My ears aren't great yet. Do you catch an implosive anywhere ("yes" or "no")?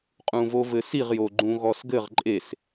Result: no